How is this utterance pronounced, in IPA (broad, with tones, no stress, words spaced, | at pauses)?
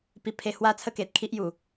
pi˧pʰe˧hwa˦t͡sʰə˥˧ ke˨t̚kʰi˦ʔ ju˨˩